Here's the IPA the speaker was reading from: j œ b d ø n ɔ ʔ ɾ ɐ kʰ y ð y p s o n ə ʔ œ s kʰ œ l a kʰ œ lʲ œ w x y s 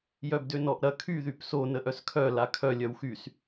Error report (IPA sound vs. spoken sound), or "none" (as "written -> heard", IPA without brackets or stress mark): none